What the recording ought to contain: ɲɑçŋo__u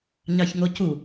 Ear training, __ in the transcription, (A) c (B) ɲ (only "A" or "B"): A